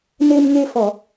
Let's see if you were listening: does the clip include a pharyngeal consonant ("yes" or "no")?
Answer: no